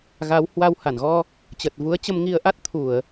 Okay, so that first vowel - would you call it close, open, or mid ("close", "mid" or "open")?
open